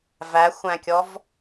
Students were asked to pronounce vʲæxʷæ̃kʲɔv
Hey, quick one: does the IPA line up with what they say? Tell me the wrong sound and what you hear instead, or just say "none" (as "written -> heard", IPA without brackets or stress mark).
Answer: vʲ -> v